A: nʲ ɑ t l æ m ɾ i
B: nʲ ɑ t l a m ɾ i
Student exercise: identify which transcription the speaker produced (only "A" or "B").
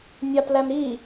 A